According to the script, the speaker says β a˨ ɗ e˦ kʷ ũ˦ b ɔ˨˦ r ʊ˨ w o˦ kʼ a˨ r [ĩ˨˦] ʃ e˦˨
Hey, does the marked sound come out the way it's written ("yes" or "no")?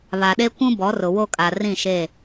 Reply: no